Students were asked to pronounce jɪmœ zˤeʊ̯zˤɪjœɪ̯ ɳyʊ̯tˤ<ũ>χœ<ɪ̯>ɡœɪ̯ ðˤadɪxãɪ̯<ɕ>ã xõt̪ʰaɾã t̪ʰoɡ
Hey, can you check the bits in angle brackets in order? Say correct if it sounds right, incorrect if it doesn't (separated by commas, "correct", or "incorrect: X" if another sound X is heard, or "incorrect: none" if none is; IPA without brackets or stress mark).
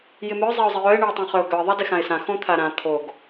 incorrect: õ, incorrect: ʊ̯, incorrect: s